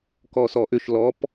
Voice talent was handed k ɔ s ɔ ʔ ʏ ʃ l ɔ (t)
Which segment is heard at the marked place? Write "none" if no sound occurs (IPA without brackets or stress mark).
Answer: p